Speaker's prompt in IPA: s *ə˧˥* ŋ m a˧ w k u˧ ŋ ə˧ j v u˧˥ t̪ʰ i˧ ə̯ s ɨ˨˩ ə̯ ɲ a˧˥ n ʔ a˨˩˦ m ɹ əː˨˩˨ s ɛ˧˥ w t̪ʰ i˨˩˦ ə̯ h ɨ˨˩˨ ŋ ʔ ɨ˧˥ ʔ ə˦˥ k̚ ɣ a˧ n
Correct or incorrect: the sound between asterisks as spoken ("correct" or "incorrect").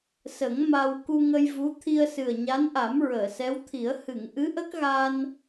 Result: incorrect